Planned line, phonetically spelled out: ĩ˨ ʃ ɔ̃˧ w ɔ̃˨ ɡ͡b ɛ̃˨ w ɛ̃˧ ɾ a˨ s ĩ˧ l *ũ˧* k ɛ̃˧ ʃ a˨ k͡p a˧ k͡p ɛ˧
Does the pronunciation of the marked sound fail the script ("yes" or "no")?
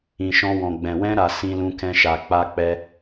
no